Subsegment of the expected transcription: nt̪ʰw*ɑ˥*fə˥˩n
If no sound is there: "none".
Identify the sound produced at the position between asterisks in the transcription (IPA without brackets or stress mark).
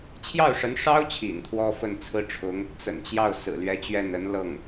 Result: ɔ˥